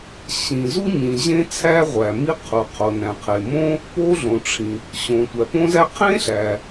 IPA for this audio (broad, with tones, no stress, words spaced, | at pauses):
ɕĩ˩ zu˥ɲĩ˩ ʑẽ˥t͡sʰæ˥ ʁʷæ˩ mi˥qʰu˩ qʰo˩næ̃˩qʰe˩ mõ˥ | po˥ɮõ˩ʈ͡ʂʰĩ˩ | ɕõ˩ tʷæ˩põ˥zæ˥ qʰẽ˥ɬæ˩